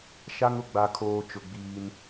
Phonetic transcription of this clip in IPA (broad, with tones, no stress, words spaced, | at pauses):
ʃa˦ŋʊ˨ɡ͡ba˨kʰoː˨ t͡ʃʊ˨ɡ͡biː˦n